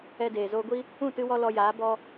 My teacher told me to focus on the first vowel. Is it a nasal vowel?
no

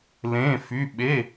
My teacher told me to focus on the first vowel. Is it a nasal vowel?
yes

